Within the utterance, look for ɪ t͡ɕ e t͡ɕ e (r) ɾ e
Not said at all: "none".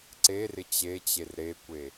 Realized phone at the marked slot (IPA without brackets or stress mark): r